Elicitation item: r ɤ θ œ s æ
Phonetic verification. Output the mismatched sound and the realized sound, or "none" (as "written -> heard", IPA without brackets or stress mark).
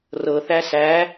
œ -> æ